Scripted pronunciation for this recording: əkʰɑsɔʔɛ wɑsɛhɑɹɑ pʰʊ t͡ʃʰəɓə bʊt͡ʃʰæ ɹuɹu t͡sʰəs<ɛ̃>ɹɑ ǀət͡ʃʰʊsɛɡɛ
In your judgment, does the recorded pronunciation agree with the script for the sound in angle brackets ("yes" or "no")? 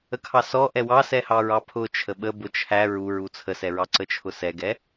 no